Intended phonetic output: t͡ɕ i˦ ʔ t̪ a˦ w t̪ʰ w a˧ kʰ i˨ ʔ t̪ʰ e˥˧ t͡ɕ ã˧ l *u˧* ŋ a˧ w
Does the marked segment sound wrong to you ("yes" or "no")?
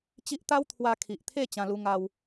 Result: no